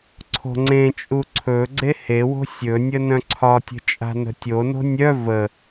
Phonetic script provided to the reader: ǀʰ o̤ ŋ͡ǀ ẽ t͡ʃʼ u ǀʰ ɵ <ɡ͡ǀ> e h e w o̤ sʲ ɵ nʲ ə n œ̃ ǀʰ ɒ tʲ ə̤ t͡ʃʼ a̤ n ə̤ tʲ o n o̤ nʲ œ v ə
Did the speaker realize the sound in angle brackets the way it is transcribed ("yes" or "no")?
yes